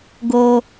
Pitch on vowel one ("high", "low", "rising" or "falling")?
high